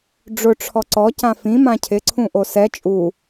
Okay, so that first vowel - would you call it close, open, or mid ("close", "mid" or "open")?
close